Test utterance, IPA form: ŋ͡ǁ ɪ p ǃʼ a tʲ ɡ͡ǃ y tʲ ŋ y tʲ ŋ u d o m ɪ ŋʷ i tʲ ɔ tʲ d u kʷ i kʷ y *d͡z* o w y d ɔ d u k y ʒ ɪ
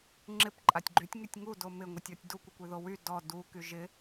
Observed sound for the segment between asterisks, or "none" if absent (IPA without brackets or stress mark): ð